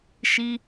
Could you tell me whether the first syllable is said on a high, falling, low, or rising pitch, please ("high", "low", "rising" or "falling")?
high